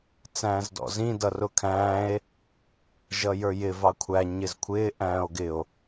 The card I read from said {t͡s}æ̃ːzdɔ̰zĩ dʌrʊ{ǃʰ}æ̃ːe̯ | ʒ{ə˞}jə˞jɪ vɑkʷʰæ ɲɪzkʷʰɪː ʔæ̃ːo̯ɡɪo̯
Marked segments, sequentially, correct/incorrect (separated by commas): correct, incorrect, incorrect